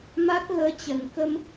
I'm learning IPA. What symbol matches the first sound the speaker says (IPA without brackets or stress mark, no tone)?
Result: m